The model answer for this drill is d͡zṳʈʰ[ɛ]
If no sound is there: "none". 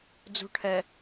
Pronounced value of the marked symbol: ɛ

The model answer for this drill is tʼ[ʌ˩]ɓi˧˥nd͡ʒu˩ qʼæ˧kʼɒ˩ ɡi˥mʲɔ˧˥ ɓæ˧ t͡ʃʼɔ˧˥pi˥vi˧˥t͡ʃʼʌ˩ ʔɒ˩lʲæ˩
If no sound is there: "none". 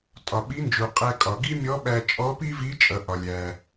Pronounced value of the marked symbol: ɒ˩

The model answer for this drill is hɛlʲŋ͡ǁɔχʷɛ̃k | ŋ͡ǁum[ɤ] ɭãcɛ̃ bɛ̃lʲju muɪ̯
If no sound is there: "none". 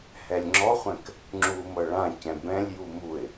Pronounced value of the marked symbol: ɤ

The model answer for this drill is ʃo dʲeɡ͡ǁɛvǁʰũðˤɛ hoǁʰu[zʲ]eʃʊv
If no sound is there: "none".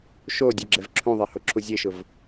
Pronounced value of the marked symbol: zʲ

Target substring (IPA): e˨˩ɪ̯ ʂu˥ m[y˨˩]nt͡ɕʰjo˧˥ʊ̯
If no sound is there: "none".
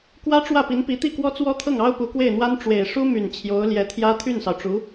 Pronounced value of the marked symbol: y˨˩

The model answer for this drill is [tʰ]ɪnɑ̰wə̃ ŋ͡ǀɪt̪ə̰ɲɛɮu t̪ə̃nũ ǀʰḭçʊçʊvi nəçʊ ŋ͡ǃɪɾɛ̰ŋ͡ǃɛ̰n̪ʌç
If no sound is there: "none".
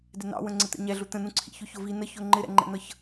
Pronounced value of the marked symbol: d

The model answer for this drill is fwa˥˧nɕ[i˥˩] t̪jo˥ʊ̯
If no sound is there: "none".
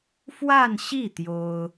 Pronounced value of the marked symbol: i˥˩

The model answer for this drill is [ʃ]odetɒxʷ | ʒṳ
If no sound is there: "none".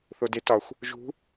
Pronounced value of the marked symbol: θ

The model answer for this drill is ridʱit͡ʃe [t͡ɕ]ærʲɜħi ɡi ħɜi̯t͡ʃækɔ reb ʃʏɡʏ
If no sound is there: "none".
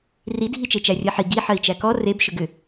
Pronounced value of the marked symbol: t͡ʃ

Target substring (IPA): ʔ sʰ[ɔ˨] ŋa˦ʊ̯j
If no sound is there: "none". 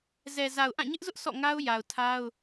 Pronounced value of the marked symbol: ɔ̰˦˨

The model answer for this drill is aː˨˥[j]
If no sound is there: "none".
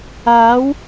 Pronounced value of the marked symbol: w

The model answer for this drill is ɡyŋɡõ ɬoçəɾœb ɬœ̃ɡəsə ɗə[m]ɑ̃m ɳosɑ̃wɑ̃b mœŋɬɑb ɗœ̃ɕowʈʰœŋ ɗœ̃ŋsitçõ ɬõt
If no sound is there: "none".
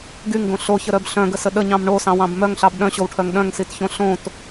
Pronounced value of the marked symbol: ɲ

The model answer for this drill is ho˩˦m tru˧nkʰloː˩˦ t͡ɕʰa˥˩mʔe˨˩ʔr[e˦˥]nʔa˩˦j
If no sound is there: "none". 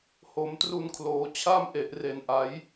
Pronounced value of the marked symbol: e˨˩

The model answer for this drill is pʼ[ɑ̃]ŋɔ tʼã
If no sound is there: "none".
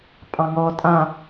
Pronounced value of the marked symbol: ɑ̃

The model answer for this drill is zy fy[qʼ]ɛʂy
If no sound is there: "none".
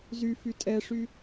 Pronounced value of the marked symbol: tʼ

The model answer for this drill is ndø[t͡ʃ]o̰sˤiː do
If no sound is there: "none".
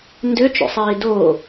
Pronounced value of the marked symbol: t͡ʃ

